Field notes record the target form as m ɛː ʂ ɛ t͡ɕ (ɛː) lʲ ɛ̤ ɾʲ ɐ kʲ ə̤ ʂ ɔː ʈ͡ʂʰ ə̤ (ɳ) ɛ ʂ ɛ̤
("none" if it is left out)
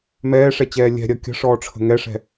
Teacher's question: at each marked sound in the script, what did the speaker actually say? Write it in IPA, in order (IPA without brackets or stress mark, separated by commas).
ɛː, ŋ